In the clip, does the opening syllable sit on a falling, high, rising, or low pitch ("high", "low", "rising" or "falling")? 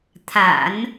low